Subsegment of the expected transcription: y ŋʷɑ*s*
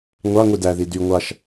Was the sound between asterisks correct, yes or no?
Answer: no